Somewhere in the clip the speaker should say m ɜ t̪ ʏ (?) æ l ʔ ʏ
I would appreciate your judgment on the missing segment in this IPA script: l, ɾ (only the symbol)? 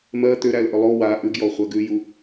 ɾ